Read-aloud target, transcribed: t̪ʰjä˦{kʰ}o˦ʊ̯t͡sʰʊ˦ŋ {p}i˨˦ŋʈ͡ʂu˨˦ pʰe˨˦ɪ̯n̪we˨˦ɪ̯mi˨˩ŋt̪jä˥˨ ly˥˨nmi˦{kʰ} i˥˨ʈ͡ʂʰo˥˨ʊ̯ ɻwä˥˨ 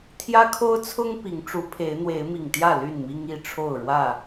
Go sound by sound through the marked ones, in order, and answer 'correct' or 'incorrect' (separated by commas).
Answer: correct, correct, incorrect